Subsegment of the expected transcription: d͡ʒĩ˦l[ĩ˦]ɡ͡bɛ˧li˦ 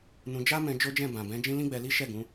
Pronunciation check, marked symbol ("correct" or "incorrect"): correct